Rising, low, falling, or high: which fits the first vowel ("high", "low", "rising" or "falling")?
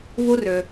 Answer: high